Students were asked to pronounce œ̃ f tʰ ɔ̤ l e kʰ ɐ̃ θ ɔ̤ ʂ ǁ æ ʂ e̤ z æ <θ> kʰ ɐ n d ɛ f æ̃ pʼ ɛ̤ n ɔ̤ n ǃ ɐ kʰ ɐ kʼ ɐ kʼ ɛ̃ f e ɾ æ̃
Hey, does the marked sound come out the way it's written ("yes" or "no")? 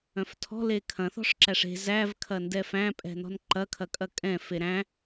no